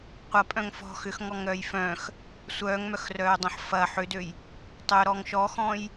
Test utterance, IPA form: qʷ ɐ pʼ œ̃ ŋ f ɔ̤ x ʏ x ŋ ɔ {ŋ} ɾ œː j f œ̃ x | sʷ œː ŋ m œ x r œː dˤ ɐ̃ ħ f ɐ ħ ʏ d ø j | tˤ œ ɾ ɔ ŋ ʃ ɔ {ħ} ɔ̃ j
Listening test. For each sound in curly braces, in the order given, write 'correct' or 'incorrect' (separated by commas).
correct, incorrect